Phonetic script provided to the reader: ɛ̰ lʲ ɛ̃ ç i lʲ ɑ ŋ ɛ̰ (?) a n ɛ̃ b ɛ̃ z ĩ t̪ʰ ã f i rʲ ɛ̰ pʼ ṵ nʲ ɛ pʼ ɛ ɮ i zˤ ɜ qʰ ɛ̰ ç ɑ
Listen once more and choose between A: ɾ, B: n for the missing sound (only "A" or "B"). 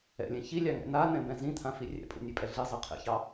B